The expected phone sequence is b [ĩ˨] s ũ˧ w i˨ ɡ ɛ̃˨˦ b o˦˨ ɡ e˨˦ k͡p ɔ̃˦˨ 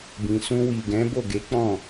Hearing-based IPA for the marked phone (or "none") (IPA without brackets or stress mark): ĩ˨